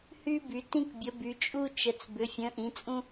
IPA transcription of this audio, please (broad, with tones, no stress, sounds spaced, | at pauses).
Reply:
h y˥ b y˨˥ t ĩ˥ k bʲ ə˨˥ b y˨˥ t͡ʃʼ u˥ t͡ʃ ə˨˥ t͡s b ʏ˨˥ fʲ ə̃˨˥ ʔ ĩ˨˥ t͡sʼ ũ˥